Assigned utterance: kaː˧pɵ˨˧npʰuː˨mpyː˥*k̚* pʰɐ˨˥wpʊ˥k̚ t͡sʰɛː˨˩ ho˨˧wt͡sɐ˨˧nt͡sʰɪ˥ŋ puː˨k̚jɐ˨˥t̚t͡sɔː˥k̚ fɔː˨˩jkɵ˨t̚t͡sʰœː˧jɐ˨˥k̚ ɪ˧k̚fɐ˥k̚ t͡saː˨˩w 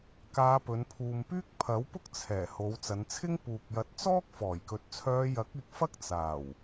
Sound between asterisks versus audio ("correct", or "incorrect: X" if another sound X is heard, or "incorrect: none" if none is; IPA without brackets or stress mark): correct